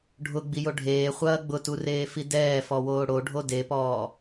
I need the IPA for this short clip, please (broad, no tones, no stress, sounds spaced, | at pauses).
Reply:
ɖʱ ʊ ɡ͡b i j o ɖʱ eː χʷ ɐː ɡ͡b ʊ t u r eː f i d ɛː f ɔ w oː ɽ o ɖʱ o d e p ɔː